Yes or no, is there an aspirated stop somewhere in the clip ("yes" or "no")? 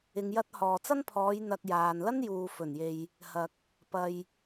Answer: yes